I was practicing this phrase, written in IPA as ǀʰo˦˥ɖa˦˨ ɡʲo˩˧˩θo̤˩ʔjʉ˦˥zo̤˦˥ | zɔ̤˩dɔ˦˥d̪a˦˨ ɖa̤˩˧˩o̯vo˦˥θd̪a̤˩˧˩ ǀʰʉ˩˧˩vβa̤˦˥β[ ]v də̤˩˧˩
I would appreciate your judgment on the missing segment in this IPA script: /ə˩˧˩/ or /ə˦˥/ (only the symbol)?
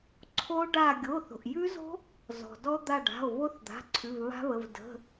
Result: ə˩˧˩